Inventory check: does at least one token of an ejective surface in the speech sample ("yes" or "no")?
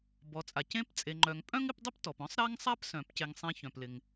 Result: yes